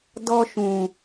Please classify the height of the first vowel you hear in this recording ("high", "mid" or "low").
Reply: mid